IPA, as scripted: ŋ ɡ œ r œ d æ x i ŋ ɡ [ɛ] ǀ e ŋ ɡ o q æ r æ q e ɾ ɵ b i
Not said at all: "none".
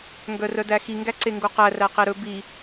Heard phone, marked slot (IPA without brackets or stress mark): æ